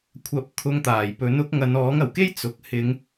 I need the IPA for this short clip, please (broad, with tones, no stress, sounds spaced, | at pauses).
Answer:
kʷʰ ɐ˨˥ p̚ t̪ʰ ʊ˧ ŋ t̪ aː˨˩ j p ɵ˨˥ n ʊ˨˥ k̚ ŋ ɐ˨ n ɔː˨˥ ŋ ɐ˨˩ w k e˥ j t͡s ʊ˨ k̚ h ɪ˨˧ ŋ